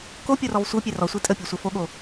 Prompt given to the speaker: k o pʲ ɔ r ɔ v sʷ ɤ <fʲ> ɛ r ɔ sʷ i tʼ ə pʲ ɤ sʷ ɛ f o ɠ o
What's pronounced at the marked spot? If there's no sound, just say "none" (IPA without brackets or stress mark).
pʲ